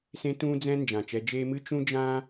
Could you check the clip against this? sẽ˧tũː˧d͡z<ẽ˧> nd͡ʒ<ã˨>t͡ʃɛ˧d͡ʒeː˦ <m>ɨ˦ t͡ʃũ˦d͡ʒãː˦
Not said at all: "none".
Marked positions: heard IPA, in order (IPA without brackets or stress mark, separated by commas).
ɛ̃˧, ã˨, m